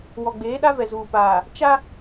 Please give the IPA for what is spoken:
wɔ˨ɡ͡beː˨˦ɗa˦vɛ˨ zuː˨paː˨ | t͡ʃa˦

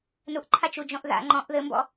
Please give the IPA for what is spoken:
nuʔǃʰat͡ʃud͡ʒɔ̃ʔ ða̰ ŋ͡ǃɔ̃ʔ ðɘmbɔ̰

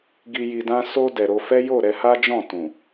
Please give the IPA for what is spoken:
ɡi˨ji˨dã˧ so˧ dɛ˨ɾo˧fɛ˦ jo˦˨ ɾɛ˧ha˦d͡ʒɔ̃˦˨ tũ˨

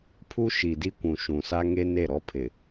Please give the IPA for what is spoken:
pʰu˦ʃi˨di˦kʷũ˨ ʃũ˨sa˦ŋe˦ ne˦˨ɾɔ˦pʰɪ˨

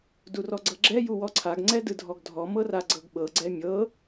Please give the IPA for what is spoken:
durɔɡ͡ǀɤɡ͡ǁɛ juwɔǀʰaɡ ŋ͡ǀɛdɯdʱɔɡdʱɔ mɤraɡ͡ǀɤɡɓɤ ɡ͡ǀɛmʲɤ

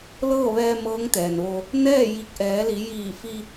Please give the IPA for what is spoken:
lɤː˥˨ʋɛː˧ mɤː˧˥ŋt̪ɛː˩nʋo˧ | nɛː˥˨ ji˧k̚ʔɛː˩˧li˩˧ jiː˧˩fi˧

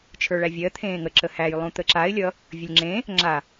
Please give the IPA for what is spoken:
t͡ʃʰə˞ɭævʲɜ t̪ʰẽːŋə ǁəhæj lˠũt̪əǁaɪ̯ lʲʌ | vʲəlʲŋ͡ǁẽ | ŋ͡ǁa

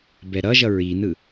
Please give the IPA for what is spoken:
bɛɾʌʒʌ ɹinɯ

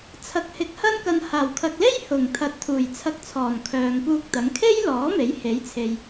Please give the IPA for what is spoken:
t͡sʰɐ˨˥k̚hɪ˨˥k̚ hɐ˧nkɐ˨nhaː˨˩wkʰɐ˨k̚ le˥jhʊ˨˩ŋ t̪ʰɐ˨˥t̚t̪ʰuː˨˩jt͡sʰɐ˧k̚t͡sʰɔː˨˩n kʰœː˨ŋpuː˧k̚t̪ɐ˨˧ŋ kʰe˥j lɔː˨˥ me˨˥jhe˨˥jt͡sʰe˨j

